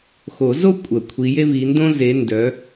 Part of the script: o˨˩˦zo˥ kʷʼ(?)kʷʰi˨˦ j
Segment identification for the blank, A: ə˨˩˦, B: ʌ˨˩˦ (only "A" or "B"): A